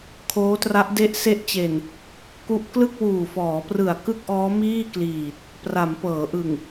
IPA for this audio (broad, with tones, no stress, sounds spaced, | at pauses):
kʰ oː˦˥ t r a˦˥ ʔ d e˦˥ ʔ s e˦˥ ʔ t͡ɕ e˨˩ n | k u˦˥ ʔ k l ɯ˥˩ k̚ w uː˨˩ f ɔː˩˦ p r ɯ˨˩ a̯ k ɯ˥˩ k̚ ʔ ɔː˦˥ m iː˥˩ k l iː˨˩ t̚ | p r a˩˦ m p ɤː˩˦ ʔ ɯ˨˩ ŋ